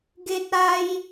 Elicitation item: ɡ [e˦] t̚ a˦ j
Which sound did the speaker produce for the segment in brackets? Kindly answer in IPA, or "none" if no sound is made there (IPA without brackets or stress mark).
e˦